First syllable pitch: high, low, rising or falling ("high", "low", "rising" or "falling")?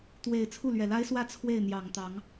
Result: low